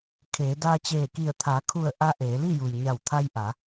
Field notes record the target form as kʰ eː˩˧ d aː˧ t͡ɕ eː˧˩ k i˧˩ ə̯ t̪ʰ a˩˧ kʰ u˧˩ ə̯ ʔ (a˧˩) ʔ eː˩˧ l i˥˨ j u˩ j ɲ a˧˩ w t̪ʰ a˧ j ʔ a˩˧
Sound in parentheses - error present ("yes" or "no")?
yes